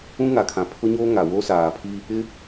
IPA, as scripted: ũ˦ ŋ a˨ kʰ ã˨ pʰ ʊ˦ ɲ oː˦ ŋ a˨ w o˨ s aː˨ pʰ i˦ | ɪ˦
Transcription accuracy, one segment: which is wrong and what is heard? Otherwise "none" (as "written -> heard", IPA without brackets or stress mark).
o˨ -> o˦